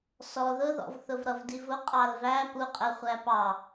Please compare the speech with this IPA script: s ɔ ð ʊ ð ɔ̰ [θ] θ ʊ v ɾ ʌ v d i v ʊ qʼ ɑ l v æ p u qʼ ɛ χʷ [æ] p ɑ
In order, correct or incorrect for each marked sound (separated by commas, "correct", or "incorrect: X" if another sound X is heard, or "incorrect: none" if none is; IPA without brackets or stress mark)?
incorrect: v, correct